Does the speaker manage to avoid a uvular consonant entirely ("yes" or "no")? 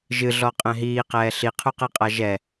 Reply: no